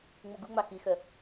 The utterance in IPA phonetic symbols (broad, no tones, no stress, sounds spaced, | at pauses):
ŋ͡m u ɡ u ŋ͡m ɑ x i x œ